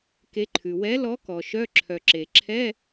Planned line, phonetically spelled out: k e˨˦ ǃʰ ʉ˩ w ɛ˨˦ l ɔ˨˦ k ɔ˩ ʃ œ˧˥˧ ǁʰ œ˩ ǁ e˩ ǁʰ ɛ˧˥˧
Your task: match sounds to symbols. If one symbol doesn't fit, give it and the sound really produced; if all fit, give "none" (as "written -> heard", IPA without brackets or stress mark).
none